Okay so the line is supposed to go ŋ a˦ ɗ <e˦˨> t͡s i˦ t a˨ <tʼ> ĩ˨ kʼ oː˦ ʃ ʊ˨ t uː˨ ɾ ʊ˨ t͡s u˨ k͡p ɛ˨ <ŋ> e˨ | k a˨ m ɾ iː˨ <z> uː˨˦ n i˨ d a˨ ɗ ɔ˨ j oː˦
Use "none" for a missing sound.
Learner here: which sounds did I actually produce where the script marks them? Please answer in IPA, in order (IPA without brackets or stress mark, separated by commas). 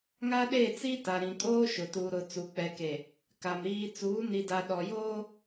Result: e˦˨, ɾ, k, t͡s